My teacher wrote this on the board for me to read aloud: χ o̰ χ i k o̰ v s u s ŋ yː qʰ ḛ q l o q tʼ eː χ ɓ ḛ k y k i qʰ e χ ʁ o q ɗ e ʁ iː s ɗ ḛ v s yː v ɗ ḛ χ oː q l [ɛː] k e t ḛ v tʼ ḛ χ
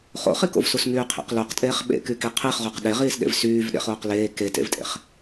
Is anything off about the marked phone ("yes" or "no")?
yes